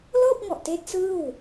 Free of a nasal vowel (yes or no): yes